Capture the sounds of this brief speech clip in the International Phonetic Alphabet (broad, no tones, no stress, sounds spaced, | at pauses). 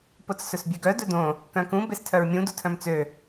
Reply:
p o t͡s s ɵ s bʲ ʉ ɡ œ d ɵ d õ | k œ̃ k ũ b e s tʰ œ ɹ mʲ ũ d u tʰ œ̃ m t͡s ø